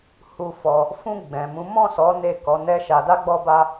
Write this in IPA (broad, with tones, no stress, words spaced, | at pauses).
hu˧fɔ˧ | fũ˧ ɡ͡bɛ̃˨mũ˨˦ mɔ̃˦˨sɔ˨˦ ne˦˨ kɔ˨˦nɛ˦ʃa˧ da˦ɡ͡bɔ˦ba˦